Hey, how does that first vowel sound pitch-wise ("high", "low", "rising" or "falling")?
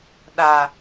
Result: low